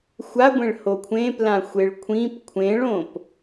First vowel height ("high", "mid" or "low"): low